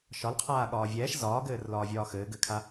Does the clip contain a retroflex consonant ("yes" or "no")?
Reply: no